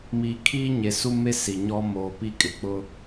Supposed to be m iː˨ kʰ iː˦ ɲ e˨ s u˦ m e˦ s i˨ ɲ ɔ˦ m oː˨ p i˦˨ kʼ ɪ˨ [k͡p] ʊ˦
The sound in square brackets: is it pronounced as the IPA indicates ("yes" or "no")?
yes